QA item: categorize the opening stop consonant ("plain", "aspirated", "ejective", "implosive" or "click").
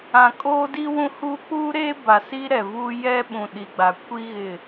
ejective